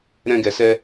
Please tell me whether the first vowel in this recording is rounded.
no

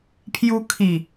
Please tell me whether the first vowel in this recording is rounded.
yes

